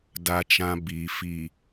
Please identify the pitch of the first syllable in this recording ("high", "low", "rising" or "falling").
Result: low